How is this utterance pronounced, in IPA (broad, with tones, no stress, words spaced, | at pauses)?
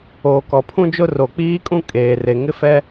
oː˨kɔ˨pʰũ˦d͡ʒʊ˦ ro˨k͡piː˦kʼũ˦ kʼeː˨re˨ ŋɪ˦fɛ˦